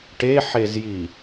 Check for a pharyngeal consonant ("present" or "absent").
present